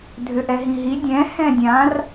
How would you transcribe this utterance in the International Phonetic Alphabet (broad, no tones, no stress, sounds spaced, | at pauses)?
dʱ ø ʔ ɛ ɦ ĩ ɦ i dʲ ɛ̃ h ɛ̃ dʲ ã r